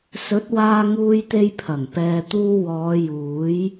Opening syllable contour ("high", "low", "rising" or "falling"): rising